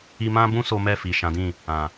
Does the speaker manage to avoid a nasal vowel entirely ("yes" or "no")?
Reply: no